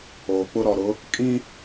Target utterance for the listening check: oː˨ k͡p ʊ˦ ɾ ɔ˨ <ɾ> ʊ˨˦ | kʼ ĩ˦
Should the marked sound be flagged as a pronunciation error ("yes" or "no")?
no